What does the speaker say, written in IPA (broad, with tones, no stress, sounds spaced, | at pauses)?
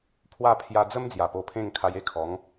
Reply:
pʰ w a˥˧ pʰ j a˧ d͡z ə˦ m d͡z j a˨˩ p o˧ pʰ ẽ˥˧ ŋ kʰ a˧ j e˦ kʰ ɔ˨˦ ŋ